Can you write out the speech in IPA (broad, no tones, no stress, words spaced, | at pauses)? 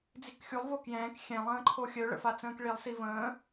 d͡zikxʲulˠ vokjɛ̃ːk xʲɛ̃ lˠə̃ːǃʰoxʲœ ɭə̰fat͡sə̃ːkɭilˠ sivə̃ː